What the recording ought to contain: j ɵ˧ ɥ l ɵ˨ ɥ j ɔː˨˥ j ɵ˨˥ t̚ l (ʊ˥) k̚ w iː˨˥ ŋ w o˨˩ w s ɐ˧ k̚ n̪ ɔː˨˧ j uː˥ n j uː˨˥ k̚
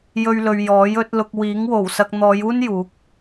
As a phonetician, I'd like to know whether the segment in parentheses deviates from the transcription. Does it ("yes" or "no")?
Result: yes